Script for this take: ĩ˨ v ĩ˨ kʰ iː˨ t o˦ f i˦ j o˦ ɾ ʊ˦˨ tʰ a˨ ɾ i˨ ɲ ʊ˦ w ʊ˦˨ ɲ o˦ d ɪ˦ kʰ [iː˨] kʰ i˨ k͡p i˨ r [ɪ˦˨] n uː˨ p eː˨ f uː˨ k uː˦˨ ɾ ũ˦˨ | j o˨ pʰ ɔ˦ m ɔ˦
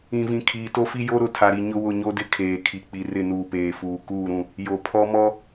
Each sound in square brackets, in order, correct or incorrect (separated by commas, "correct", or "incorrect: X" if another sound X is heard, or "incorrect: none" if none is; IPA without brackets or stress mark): incorrect: eː˨, correct